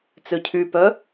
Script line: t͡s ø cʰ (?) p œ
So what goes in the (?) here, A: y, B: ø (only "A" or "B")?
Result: A